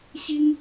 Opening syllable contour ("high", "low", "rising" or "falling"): high